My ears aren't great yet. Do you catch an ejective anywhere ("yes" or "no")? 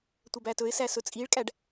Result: yes